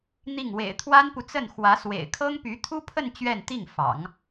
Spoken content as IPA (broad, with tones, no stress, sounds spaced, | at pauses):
n̪ i˥˩ ŋ w ḛ˨˩ ɪ̯ t̪ʰ w a˥ n p u˨ t͡s ə˥˩ n x w ä˧˥ s w ḛ˨˩ ɪ̯ kʰ ɤ˥ ŋ p y˧˥ t̪ʰ u˥ pʰ ə˥˧ n t͡ɕ ɥ ɛ˥˧ n t̪ i˥˩ ŋ f ɑ̰˨˩˦ ŋ